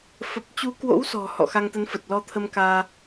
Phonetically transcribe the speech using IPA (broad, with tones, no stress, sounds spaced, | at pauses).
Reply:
f ə˨˩ p̚ t͡ɕ u˨˦ k w o̰˧˥ w s ɔ̤˨˩ h ɔ̰˧˨ x a˧ ŋ t̪ ə˨˦ n f ə˨˩ t̚ l ɔ˧ t̪ʰ ə˧ m k aː˧